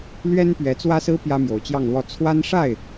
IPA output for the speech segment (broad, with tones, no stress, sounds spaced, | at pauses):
l ɥ ɛ˥ n p ɥ ɛ˧˥ t͡s w ä˥ s ɹ̩˥ p j ä˥ m j o˧˥ ʊ̯ t͡ɕ j ɑ˥˧ ŋ l w ɔ˥˩ t͡sʰ w a˥ n ʂ a˥˩ ɪ̯